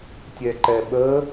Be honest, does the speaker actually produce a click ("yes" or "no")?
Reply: yes